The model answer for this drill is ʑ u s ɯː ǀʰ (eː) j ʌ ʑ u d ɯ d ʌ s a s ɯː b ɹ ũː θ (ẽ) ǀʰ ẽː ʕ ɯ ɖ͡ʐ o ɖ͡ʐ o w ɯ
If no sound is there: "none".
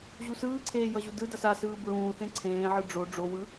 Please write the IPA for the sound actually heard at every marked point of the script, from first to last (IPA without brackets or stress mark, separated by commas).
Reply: eː, ẽ